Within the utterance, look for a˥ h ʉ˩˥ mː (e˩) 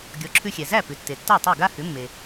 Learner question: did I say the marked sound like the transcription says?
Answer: yes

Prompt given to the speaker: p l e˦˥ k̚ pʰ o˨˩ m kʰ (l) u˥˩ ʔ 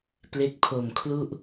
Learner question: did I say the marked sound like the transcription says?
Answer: yes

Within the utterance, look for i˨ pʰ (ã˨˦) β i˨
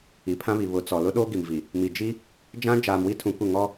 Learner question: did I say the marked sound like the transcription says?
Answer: no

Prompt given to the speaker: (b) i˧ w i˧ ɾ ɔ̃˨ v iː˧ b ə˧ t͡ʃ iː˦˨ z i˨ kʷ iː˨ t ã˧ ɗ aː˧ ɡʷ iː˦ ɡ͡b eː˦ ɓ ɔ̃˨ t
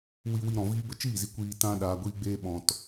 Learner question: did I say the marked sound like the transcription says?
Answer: no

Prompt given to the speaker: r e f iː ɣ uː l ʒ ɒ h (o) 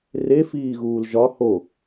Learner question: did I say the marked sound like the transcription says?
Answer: yes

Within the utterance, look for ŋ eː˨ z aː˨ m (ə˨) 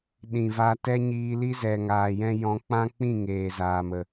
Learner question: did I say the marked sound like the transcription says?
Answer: yes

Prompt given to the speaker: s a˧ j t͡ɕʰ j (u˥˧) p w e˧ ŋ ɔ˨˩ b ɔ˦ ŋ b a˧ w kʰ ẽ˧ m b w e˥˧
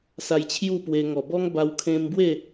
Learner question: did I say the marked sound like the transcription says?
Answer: yes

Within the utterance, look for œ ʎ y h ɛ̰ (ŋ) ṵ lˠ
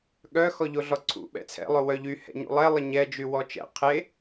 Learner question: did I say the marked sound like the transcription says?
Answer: no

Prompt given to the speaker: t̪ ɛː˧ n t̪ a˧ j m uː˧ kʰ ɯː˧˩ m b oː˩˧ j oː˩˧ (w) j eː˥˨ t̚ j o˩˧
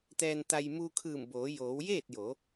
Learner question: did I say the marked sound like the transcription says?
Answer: yes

